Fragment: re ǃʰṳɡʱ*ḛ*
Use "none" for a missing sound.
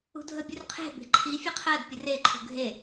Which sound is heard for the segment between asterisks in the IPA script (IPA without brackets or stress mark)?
e